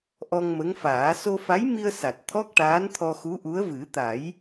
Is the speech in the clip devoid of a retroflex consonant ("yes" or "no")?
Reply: no